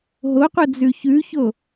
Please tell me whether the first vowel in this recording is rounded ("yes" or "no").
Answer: yes